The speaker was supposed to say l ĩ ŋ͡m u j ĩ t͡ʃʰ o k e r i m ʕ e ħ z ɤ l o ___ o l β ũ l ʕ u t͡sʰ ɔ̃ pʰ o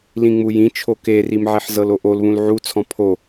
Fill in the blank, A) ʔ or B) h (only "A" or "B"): A